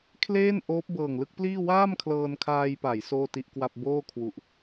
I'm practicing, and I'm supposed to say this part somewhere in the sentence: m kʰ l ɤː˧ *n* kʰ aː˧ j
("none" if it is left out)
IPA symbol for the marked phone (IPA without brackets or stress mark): n